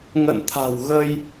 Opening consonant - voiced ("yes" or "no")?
yes